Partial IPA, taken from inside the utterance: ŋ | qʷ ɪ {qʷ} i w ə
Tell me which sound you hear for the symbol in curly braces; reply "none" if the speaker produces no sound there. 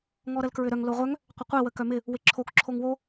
qʷ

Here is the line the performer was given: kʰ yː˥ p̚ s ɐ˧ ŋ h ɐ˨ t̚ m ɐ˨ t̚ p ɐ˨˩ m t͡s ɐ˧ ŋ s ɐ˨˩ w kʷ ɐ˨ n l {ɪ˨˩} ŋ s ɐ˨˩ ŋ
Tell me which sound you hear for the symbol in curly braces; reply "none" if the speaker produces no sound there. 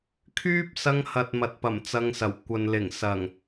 ɪ˨˩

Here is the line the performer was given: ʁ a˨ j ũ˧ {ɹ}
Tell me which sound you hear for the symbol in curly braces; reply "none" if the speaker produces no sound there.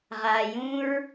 ɹ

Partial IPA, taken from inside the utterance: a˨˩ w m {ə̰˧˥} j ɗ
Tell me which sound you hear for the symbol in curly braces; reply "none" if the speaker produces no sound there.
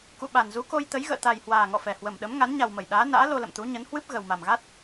ə˧˩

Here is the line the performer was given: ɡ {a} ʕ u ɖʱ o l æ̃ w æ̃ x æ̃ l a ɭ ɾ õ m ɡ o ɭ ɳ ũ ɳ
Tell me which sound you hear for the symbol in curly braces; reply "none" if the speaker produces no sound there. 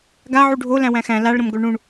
a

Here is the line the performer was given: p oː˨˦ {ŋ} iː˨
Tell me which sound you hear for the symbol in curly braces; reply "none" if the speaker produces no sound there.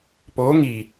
ŋ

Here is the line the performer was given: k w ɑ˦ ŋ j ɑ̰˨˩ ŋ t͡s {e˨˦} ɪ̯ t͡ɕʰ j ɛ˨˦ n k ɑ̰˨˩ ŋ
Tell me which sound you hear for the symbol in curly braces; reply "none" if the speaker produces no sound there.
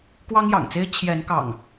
e˦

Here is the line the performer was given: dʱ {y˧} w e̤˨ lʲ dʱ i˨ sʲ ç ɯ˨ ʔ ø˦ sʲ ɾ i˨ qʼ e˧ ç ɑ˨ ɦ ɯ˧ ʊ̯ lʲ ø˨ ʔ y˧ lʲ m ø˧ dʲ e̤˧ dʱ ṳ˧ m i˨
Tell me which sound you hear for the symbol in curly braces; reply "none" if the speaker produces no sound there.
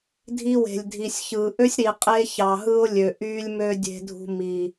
i˧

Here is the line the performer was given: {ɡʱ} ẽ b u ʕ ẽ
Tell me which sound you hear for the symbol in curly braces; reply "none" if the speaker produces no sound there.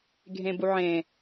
ɡʱ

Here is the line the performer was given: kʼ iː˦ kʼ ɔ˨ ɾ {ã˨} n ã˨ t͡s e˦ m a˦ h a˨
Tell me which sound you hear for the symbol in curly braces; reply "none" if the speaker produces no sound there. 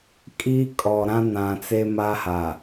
ã˦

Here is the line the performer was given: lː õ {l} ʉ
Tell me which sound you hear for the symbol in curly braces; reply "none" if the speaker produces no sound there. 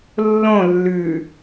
lː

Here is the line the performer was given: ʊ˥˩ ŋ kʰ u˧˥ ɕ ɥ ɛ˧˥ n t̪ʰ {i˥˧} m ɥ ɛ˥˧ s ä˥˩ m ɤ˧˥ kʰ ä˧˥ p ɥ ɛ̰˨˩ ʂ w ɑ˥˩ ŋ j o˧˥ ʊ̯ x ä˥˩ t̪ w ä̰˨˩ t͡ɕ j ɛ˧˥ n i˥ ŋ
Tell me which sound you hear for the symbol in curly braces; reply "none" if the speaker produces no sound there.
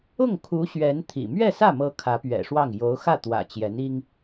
ḭ˨˩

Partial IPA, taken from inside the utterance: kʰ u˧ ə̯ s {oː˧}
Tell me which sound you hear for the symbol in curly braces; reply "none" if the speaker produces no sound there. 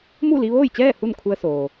oː˩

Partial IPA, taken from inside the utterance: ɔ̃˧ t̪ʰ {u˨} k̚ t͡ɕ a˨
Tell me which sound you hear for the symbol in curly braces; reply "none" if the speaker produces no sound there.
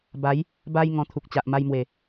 u˨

